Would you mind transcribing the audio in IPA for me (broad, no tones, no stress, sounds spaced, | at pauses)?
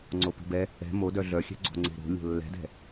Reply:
ŋ͡ǀ o p i̤ b ɛ | ɛ̤ m o d œ ɮ œ xʲ ɛ̤ ɡ͡ǀ o̤ ŋ͡ǀ e̤ ɾ o̤ lʲ o̤ lː ɛ̤ d ɛ̤